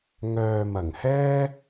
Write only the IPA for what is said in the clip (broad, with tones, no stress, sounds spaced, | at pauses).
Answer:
ŋ œː˨ m ɐ˨˩ ŋ h ɛː˥